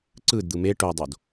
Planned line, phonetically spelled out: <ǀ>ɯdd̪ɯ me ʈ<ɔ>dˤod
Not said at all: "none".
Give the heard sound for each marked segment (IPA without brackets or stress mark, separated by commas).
ǀ, o